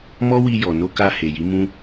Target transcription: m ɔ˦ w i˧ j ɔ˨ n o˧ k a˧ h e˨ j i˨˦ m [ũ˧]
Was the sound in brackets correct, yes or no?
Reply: yes